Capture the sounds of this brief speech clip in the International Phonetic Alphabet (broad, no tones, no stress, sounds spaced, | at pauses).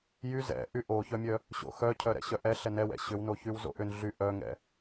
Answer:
j y z ɛ̰ ʔ y ʔ o ç œ mʲ œ | ɕ o̰ x œ cʰ œ ɾ ɛ̰ ɕ œ ʔ ɛ ɬ ɛ n ɛ w ɛ̰ ɕ ʏ w n o ç y w z o̰ ʔ ʏ n ɮ y ʔ œ ŋ ɛ̰